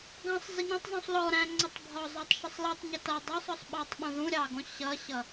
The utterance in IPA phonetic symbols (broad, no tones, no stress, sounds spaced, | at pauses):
ɡ ɑ̃ sˤ z i ɲ ɑ̃ tˤ zˤ ũ sˤ l ɔ ɾ æ̃ ŋ͡ǀ ʌ tˤ bʱ ɒ zˤ ɑ tˤ ʃ ɪ sˤ l i tˤ ɲ ɪ t ʌ dˤ ɑ sˤ ɒ sˤ ɓ ɑ tˤ ɓ ũ ð ũ ɾʲ ɑ ɡ ɔ̃ ɕ ʌ ɕ ʌ